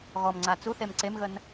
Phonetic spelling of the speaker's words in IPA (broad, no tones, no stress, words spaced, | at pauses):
ɣɔmŋ͡ǀa t͡suθem ǀemɣən